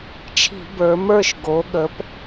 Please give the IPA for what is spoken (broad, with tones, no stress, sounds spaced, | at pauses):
t͡ʃʰ i̤˧˩˧ b ə˞˩˧ m ə˞˦˨ ʃ ɡ o˩˧ ɠ ə˩˧ p